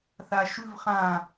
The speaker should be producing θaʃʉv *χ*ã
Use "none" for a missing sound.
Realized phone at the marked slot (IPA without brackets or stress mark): χ